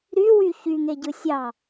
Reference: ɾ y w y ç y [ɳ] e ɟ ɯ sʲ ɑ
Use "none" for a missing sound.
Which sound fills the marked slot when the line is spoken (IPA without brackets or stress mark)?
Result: ŋ